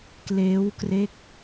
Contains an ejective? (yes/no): no